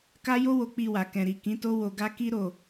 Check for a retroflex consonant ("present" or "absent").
absent